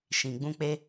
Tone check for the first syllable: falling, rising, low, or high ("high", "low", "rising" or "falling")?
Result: low